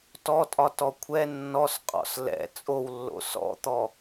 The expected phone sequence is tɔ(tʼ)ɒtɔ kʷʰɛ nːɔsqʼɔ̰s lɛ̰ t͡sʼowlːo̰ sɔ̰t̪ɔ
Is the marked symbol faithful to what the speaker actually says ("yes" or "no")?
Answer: yes